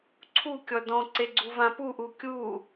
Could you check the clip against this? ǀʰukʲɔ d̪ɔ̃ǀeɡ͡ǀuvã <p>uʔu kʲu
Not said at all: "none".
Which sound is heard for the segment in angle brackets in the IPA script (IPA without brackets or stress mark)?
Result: p